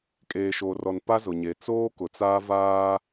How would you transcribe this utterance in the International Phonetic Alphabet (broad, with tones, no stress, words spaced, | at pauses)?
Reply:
kʼeː˨ʃoː˨rɔ˨n pa˦zʊ˨ɲe˨ t͡soː˦kʊ˨t͡saː˦ vaː˦